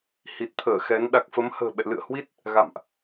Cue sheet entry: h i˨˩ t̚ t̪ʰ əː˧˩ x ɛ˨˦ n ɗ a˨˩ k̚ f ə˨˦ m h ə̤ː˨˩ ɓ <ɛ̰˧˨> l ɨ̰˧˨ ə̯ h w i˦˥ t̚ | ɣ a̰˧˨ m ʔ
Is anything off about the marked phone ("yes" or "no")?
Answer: no